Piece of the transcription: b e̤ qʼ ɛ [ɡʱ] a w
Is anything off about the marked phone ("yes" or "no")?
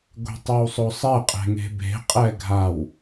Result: no